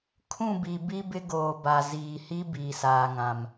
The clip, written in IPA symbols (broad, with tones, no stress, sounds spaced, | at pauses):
kʰ ũ˦˨ b i˨ b i˦ b ɪ˦ ɡ oː˨ b a˨ z iː˨ h i˦ b iː˨ s aː˨ ŋ ã˨ m